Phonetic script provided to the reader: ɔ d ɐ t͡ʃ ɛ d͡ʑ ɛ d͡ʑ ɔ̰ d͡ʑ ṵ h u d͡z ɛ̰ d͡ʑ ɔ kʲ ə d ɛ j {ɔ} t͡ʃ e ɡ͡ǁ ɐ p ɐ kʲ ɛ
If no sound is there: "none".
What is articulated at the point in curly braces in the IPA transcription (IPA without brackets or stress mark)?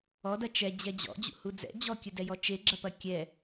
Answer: ɔ